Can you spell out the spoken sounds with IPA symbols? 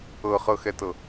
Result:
ɤ χ ɤ x ɛ t ɤ

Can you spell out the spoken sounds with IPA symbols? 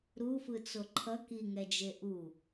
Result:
ɾ u f ɯ t͡s o ǃʰ ʌ k i ŋ ɛ d͡ʒ e ʔ u

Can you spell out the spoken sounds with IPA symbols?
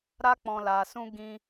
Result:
ɾ a˦ k͡p ɔ̃˧ l a˧ s ũ˦ ɡ ĩ˧

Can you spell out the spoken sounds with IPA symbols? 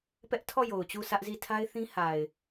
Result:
p ɛ˦ ʔ tʰ ɔ˦˨ j o˨ ʊ̯ t͡ɕ u˦˨ s ä˦ ʔ z i˦˨ tʰ a˦ ɪ̯ θ ĩ˦ h a˨ ɪ̯

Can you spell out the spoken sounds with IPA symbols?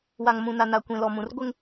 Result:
w a˨ ŋ m ũ˨ n a˨ n a˨ kʷ ĩ˨ l ɔ˨ m ũ˨ r ɡʷ ɪ˦ ŋ

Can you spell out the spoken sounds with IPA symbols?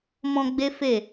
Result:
m ɔ̃˧ ɡ͡b e˦ f e˦˨

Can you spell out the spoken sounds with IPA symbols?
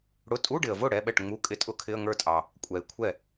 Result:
ɽ ʊ˧˥˧ tʼ u˧˥˧ ɖ ɪ˩ ə̯ v ʊ˥˩ ɽ ɛ˧˥˧ ɓ ɛ˥˩ ʈ ŋ͡m u˧˥˧ kʼ ɪ˧˥˧ tʼ ʊ˧˥˧ kʰ ɪ˧˥˧ ə̯ ŋ ə˞˥˩ tʼ ɑ˩ | kʷʼ ɛ˩ ɪ̯ kʷʰ ɛ˥˩

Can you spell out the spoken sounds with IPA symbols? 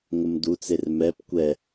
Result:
ŋ ə m d u t͡s e r m ɛ p kʷ ɛ

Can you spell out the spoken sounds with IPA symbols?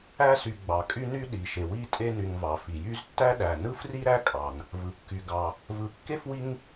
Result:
æ˦ s y˨ ɡ͡b ɑ˩ kʼ y˦ n y˦ ɗ i˩ ʃ e˩ w i˥ tʼ e˦ n y˨ ŋ v ɑ˩ f i˩ j y˦ z tː æ˥ ɗ æ˩ n ɯ˥ f r i˥ ɾ æ˥ kʼ ɑ˩ n | v ɯ˩ kː y˨ ɡ ɑ˨ | v ɯ˨ kː e˥ f w i˦ ŋ

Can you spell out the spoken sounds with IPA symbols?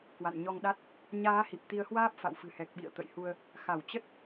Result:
k w a̰˧˨ n ɲ ɔ˧ ŋ ɗ a˦˥ t̚ | ɲ aː˨˦ h i˨˩ p̚ t̪ i˨˦ ə̯ h w aː˦˥ p̚ f a̰˧˨ w f ɨ̤˨˩ h ɛ˨˩ k̚ ɓ ḭ˧˨ ə̯ t̪ ə̰˧˨ j h u˧ ə̯ | x a˧˩ w t͡ɕ ə˦˥ t̚

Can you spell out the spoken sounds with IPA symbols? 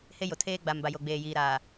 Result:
h e˦ j o˨ tʰ eː˦ ɡ͡b a˨ m b a˨ j o˨ ɡ͡b eː˨ j iː˨ ɾ aː˨

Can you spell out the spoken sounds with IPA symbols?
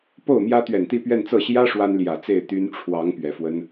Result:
p o˥˩ ʊ̯ m j ä˥ t̪ ɥ ɛ˨˩ n t̪ i˥˧ p ɥ ɛ˥˧ n t͡s ɤ˥˩ ɕ j ä˥ ʂ w a˥ n l j ä˨˩ t͡s e˥˩ ɪ̯ t̪ y˥ n ʈ͡ʂʰ w ɑ˧˥ ŋ p ɥ ɛ˨˩ f w ə˥ n

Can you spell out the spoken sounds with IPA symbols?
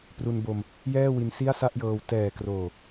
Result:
p r u˧ n b o˧ m | j ɛː˥˩ w i˧ n s i˥˩ a̯ s a˥˩ ʔ j ɤː˧ w t ɛː˨˩ k r oː˨˩

